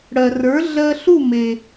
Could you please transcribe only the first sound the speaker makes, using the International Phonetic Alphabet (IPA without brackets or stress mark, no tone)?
ɽ